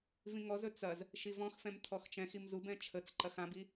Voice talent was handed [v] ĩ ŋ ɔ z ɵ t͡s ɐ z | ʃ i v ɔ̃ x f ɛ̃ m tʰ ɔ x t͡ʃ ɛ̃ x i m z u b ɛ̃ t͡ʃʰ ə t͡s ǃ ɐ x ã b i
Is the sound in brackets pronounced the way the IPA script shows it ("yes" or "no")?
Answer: yes